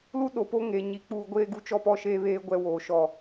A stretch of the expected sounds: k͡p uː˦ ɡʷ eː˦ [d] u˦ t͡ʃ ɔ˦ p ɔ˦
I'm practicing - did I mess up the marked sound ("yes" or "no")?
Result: yes